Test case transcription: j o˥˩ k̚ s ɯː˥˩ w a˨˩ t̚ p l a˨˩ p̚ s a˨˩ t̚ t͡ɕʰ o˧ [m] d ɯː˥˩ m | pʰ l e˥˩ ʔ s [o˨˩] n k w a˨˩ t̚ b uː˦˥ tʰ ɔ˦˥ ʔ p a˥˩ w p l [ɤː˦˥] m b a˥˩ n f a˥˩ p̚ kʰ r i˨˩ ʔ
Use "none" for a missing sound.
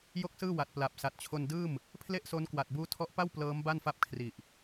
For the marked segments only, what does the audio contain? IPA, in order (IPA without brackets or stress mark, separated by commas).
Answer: n, o˦˥, ɤː˦˥